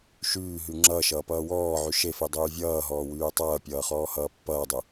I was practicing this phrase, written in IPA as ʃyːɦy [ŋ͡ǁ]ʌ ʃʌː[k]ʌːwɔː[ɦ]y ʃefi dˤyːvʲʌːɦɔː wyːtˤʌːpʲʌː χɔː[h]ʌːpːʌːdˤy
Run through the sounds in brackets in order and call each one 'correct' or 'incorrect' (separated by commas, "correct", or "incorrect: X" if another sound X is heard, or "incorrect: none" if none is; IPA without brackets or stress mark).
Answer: correct, incorrect: p, incorrect: ʕ, correct